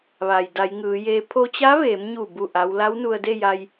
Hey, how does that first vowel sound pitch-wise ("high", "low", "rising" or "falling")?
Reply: low